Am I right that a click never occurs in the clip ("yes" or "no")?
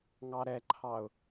no